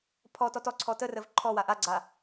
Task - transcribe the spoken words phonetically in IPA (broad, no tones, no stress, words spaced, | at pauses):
pʰɔtɔt ɔǀʰɔ tərəv ǃʰɔwa ʔaɡ͡ǀa